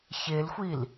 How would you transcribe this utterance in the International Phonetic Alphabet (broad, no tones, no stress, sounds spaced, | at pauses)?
ç e l xʷ i l